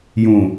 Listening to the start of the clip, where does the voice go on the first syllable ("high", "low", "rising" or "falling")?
low